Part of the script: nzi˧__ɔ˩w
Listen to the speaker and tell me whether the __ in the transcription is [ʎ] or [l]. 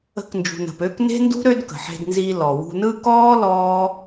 l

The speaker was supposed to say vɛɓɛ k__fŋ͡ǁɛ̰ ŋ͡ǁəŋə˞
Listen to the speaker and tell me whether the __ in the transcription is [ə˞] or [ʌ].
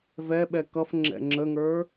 ʌ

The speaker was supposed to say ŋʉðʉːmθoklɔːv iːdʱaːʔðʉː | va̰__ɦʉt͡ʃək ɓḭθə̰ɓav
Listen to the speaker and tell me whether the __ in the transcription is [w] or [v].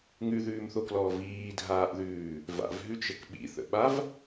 v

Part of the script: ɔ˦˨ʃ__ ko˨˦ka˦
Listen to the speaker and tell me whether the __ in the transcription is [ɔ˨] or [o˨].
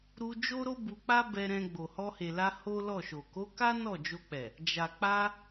o˨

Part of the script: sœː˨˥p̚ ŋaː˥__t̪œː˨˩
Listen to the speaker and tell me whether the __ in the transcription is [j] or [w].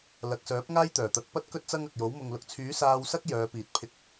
j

